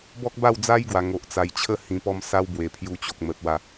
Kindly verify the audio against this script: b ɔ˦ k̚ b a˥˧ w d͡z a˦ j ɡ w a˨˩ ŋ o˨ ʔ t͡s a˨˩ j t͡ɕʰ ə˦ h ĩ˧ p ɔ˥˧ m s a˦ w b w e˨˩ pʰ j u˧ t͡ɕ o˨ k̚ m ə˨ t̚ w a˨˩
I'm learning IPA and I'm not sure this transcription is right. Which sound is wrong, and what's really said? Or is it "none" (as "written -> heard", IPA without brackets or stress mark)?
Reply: none